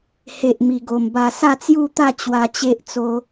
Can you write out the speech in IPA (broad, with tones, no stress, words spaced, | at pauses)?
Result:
he˨ʔ mi˨˩ɡo˨˩mba˧ sa˥˧t͡sju˥˧t̪a˥˧ t͡ɕwa˧t͡ɕe˦ʔt͡so˧